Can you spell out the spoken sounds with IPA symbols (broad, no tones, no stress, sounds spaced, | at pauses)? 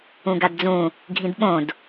ũ ɡ a d d͡z ũ | ɡʱ ĩ d ɓ õ d